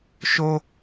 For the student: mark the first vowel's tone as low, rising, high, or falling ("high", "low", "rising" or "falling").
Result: high